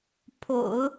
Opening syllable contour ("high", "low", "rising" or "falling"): low